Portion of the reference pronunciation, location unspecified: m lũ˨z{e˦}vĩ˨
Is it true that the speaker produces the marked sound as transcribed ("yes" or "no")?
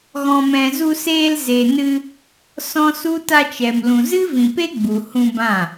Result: no